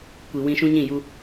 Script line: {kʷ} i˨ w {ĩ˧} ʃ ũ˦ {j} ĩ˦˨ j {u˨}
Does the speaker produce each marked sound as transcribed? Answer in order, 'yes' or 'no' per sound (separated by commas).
yes, yes, no, no